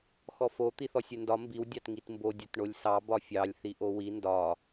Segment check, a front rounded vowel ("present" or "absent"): absent